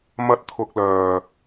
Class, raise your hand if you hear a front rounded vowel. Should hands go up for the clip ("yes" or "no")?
yes